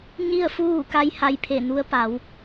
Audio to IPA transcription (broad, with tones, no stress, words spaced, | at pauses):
ɲi˥˨ə̯fuː˥˨ka˧˥j ha˧jpʰe˧˩nu˧˥ə̯ pa˩˧w